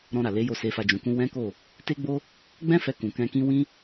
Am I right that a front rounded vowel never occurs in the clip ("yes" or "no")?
yes